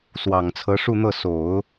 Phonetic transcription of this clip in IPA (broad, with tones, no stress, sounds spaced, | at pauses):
s w ɑ˨˩ ŋ t͡sʰ ɤ˧˥ ʂ u˥˧ n̪ ɤ˥˩ s o˨˩˦ ʊ̯